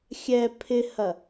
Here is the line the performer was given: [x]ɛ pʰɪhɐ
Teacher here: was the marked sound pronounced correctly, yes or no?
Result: no